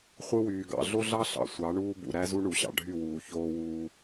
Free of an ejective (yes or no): yes